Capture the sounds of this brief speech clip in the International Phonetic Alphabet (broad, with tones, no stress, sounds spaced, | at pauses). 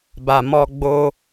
b a˨ m ɔ˧ ɡ͡b o˧